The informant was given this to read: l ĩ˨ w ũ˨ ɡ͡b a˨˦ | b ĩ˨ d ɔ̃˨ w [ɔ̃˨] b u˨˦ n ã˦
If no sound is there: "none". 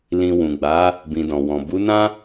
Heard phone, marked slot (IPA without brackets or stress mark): ɔ̃˨